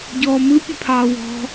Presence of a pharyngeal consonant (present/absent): absent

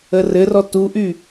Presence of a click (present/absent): absent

